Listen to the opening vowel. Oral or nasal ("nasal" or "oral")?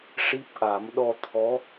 oral